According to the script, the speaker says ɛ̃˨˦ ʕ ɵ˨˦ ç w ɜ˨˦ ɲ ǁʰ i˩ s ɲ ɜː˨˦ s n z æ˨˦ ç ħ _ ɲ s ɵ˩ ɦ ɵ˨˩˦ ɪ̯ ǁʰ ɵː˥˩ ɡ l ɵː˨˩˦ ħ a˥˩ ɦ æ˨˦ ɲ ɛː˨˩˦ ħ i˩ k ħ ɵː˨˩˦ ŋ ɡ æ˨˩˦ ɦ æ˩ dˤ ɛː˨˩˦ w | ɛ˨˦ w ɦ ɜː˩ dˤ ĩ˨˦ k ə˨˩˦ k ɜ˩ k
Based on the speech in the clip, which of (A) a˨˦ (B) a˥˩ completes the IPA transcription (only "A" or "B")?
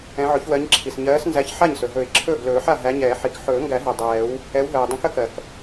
B